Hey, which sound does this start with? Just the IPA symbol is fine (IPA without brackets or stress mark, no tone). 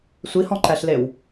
sʷ